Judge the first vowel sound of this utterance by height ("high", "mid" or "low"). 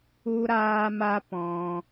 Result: high